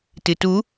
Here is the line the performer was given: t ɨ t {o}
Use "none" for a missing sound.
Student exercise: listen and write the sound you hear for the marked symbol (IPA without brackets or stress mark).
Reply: u